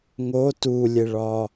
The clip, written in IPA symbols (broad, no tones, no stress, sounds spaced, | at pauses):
ŋ o t u lʲ e ɭ ɒ